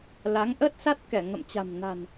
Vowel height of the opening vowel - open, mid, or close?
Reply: open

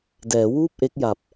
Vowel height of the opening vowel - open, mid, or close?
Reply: mid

